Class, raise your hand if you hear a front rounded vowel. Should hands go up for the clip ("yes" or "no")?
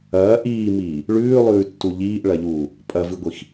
no